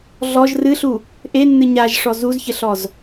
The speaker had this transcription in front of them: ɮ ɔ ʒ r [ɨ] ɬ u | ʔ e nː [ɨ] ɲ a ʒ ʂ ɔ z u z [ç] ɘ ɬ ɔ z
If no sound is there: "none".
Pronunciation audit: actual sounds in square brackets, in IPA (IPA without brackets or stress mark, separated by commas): ɨ, ɨ, ç